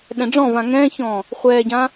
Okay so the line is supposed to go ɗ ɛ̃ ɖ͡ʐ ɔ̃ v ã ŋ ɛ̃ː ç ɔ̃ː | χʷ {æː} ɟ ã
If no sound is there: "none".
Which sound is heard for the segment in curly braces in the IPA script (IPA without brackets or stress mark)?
ɛː